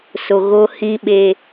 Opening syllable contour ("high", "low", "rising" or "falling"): low